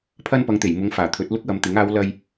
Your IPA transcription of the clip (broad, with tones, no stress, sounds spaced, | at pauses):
pʰ ɐ˥ n p ɐ˨˧ ŋ t̪ e˨˩ j m ʊ˨˧ ŋ f aː˨˩ t̪ʰ ɵ˨˥ t̚ l ʊ˥ k̚ w ɐ˨ m t̪ ɪ˨˥ ŋ aː˨˧ w l ɐ˧ j